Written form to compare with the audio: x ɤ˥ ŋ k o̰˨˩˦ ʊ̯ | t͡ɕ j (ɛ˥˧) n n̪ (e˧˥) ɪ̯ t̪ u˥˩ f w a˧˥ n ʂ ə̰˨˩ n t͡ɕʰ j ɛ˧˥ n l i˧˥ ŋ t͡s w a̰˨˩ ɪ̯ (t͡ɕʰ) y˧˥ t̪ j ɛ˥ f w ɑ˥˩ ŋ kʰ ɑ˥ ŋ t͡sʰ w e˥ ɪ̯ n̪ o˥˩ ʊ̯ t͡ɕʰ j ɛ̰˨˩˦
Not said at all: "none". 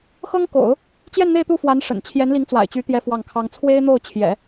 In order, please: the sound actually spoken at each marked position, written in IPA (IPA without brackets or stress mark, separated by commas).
ɛ˥˧, e˥˧, t͡ɕ